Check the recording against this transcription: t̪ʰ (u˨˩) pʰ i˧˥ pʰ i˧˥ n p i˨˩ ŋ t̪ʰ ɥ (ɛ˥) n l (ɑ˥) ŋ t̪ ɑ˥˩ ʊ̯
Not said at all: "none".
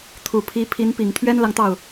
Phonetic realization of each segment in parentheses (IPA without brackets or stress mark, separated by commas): u˨˩, ɛ˥, ɑ˨